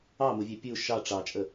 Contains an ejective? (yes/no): yes